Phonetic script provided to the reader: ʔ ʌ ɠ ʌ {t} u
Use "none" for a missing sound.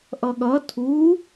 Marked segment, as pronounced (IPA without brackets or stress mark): tʰ